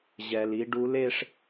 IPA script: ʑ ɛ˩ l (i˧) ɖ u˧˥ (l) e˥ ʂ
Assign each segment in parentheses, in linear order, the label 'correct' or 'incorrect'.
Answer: correct, correct

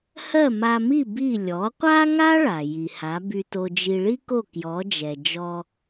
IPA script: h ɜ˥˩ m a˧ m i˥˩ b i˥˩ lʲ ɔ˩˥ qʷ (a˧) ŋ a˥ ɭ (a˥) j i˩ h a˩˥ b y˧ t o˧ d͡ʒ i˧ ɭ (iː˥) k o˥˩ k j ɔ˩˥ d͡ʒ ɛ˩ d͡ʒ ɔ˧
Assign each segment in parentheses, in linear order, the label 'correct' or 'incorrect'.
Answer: incorrect, incorrect, incorrect

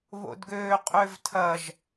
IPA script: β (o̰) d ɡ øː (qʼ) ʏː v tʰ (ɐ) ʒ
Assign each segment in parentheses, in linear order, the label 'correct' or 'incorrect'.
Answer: correct, correct, correct

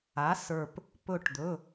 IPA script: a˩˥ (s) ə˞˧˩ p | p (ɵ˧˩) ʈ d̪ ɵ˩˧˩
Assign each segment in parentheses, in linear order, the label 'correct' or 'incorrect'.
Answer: correct, correct

